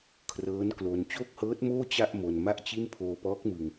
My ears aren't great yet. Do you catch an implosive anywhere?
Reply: no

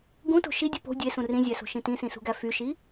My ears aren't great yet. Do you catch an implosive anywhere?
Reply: no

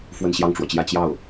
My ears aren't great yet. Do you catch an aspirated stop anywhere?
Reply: no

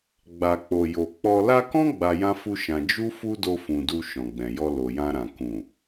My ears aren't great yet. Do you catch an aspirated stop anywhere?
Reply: no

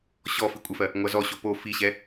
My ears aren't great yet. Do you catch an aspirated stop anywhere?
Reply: no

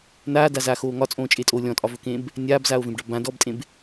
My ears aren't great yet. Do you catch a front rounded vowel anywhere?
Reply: no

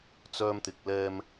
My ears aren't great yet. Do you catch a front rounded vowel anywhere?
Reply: yes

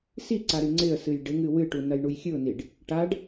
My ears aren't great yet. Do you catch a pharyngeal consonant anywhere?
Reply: no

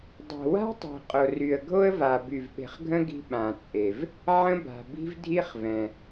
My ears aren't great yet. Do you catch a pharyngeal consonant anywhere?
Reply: yes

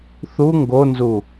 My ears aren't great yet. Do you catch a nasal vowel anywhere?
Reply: no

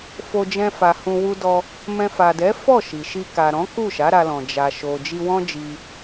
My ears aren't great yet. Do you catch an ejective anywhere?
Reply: no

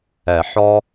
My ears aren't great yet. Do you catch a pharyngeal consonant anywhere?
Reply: yes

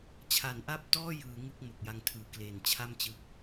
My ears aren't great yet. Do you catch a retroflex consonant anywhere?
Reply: no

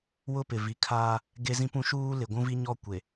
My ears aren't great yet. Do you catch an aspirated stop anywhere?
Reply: yes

